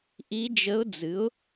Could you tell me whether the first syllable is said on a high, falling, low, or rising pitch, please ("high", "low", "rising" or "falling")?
rising